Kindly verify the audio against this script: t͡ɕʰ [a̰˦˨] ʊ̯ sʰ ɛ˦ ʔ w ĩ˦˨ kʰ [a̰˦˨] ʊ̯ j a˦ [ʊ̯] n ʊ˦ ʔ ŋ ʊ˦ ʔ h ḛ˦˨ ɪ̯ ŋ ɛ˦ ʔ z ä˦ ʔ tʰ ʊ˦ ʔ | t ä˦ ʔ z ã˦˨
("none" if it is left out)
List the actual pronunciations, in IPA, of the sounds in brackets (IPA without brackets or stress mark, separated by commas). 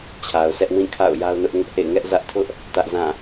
a˨, a̰˦˨, ʊ̯